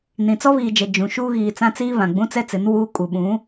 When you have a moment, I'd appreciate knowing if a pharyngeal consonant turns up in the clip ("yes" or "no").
no